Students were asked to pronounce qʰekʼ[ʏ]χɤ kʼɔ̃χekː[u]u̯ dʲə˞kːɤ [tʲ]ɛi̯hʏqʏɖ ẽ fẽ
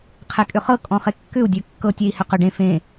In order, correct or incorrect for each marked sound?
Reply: correct, incorrect, correct

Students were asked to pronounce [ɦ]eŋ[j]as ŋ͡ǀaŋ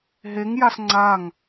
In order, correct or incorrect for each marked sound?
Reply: correct, correct

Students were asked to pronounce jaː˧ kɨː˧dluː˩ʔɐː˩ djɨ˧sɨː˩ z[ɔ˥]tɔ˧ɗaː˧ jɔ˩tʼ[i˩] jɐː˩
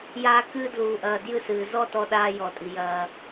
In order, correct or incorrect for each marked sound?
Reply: correct, correct

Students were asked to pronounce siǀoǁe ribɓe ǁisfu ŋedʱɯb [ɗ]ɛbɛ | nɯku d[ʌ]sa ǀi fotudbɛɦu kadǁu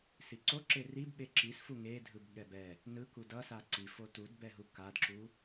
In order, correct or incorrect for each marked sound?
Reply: incorrect, correct

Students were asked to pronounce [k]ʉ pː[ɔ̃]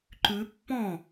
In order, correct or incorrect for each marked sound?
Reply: incorrect, correct

